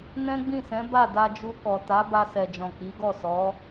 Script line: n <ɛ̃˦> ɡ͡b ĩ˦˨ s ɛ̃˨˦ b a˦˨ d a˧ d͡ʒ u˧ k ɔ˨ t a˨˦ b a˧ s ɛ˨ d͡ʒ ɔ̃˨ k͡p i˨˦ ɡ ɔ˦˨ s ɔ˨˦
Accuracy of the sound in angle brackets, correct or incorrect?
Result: correct